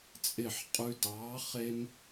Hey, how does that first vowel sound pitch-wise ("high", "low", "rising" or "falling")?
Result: falling